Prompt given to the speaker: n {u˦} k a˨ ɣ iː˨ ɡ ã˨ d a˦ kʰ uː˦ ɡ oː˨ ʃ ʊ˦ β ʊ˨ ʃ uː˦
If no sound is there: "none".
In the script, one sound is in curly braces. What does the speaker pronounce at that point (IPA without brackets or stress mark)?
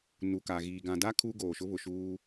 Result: u˨